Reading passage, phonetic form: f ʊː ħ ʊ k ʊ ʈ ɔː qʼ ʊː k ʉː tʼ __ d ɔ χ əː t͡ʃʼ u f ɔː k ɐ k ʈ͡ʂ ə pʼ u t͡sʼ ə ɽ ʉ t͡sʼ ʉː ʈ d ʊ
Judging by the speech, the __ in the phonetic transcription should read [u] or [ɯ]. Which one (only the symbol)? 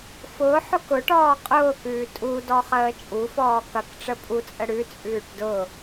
u